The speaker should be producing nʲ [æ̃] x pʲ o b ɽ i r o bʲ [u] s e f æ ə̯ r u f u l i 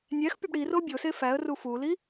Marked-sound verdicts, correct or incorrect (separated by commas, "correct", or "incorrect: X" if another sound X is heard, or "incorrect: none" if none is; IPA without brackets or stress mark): incorrect: æ, incorrect: o